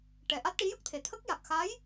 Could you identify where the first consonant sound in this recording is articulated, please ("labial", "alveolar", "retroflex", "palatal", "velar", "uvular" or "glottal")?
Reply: retroflex